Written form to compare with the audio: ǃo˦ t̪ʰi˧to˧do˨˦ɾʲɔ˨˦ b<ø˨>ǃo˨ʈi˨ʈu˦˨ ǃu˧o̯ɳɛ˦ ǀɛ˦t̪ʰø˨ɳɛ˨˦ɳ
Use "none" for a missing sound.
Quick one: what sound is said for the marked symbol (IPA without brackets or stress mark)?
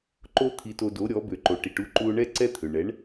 ø˨